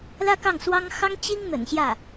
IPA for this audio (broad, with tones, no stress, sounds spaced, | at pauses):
l ä˥ k ɑ˥˩ ŋ s w ɑ˥ ŋ x ɑ˥ ŋ t͡ɕ i˥ ŋ n̪ ə̰˨˩ n ɕ j ä˥˩